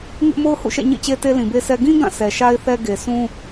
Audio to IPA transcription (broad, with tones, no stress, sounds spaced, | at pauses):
ŋ ɪ˦ ʔ m o˦ ʊ̯ h ṵ˦˨ ʃ ɛ̰˦˨ ɲ ḭ˦˨ t͡ɕ e˦ t e˦ l ĩ˨ b e˦ s ɛ˦ ɡ ĩ˦ ɡ ã˦˨ s ɛ˨ ʃ a˦ ɪ̯ θ ɛ˦ ɡ e˨ sʰ ũ˦